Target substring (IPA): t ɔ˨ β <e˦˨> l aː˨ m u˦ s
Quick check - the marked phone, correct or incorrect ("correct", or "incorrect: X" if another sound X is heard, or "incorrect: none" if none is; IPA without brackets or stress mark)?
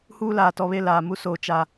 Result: correct